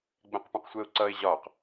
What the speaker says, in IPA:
ɡ͡bɛ̃qpũqsʷɛʊ̯ǀʌɪ̯ ʑɒq

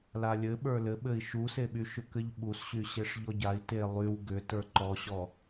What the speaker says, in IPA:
lalʲɘ ɓə˞lɘ ɓɘi̯ʃuseɓy ʃʏkɘʎɓusɕy ɕeʂʎɔɟai̯ te lˠyw ɡʏ tə˞ǃɔɕɔ

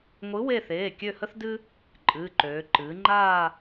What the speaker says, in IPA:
ŋʷɨ˨˥we˦˨θeː˩˧˩ kʲø˦˨hə˦θdɨ˦ | ǃʼɨː˩˧˩ǃøː˩˧ ǃɨː˩˧ŋ͡ǃaː˦˨

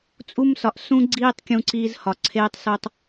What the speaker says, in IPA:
t͡sʼu˦msɒ˨ʔ sũ˦ɡ͡ǀiː˦tˤ kʲũ˦ǀiː˦zhɒ˨ ǀʰeː˦tˤso˦tˤ

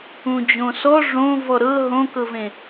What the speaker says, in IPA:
ũd͡ʑõsɔ ʐõ vɔɾɤ ɦõkɤvẽ

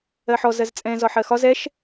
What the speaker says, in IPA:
ɜħɔ zɜzt͡sʼɛ̃ zɒħɜxɒ zɛʃ

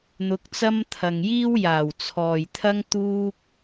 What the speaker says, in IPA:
n̪ʊ˨˥k̚t͡sɐ˥mt̪ʰɐ˨ŋ jiː˥wjaː˨˩wt͡sʰɔː˨jt̪ʰɐ˥ŋ t̪uː˥k̚

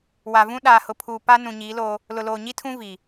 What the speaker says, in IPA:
wa˨vũ˦ ɗaː˨hʊ˨pʰuː˨ pa˦ nũ˨ɲiː˨˦loː˦ | lʊ˨loː˨ ɲi˦tʰũ˦ vi˨

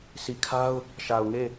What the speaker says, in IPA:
si˨kʰa˦ʊ̯ | ʃa˨ʊ̯ŋe˦˨

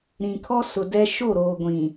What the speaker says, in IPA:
ɾĩ˨kʰɔ˦ sʊ˨dɛ˦ ʃo˦˨ɾoː˨ɡʷĩ˨

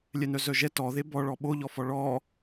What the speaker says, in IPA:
lʲɛnœzœʒɛ tɔðe bɔɭɔ ɓoʎɔfɔ ɭɔ

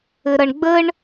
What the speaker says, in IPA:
ɘɾʌɳɡ͡bəɳ

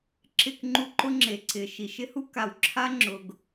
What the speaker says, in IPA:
ǁɪ˦˨kŋ͡ǃu˦ǃʊ˦ ŋ͡ǁe˨ ǀɪ˨ ʃi˨ʃɪ˦hu˦ ka˨wǁʰa˦ŋ͡ǁʊ˨ɡ

